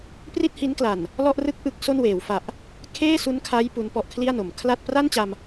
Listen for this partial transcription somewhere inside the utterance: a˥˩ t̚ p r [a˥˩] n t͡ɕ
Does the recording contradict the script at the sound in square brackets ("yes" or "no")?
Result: no